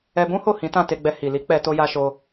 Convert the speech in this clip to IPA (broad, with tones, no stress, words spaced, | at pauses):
ɛ˧bũ˦ho˦˨ hĩ˨˦tã˦˨te˧ɡ͡bɛ˧ hi˨li˨˦k͡pɛ˧ to˧ja˧ʃo˧